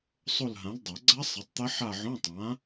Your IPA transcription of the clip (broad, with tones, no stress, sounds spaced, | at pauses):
sˤ o˦˨ l ɦ ã˨˥ l dˤ a˨˩˦ ɡ͡ǀ a˦˥ sˤ ɛ˨˥ tˤ t̪ ɐ˦˥ ħ a˦˨ ʕ õ˧˥˧ tˤ ã˨˥